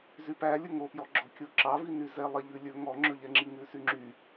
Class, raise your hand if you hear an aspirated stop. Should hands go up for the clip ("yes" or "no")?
no